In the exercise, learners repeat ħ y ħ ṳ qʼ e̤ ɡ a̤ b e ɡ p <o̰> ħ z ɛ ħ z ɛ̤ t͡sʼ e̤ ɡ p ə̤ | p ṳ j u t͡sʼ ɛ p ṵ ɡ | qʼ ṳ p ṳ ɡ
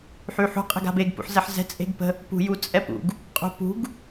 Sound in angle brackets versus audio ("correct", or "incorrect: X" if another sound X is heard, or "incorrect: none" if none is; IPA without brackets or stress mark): incorrect: ṵ